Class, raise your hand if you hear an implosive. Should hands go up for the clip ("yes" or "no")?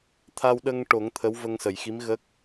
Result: yes